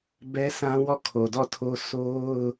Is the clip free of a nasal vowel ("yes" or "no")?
no